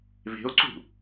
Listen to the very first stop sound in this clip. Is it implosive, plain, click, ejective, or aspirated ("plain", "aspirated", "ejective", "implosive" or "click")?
click